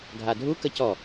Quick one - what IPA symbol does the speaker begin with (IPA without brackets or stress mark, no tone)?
ɡʱ